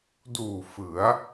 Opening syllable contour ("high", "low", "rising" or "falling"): low